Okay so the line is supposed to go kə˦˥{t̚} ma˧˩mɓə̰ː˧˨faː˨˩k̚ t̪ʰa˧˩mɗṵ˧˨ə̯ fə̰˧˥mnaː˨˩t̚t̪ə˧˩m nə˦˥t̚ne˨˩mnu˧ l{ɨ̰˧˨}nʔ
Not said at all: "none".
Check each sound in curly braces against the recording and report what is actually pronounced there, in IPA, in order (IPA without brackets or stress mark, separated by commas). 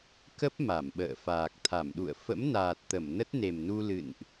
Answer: p̚, ɨ̰˧˨